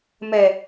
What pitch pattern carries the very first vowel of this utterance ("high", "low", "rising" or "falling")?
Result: low